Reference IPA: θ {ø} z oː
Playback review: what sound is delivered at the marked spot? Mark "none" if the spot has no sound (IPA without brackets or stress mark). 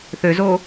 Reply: ø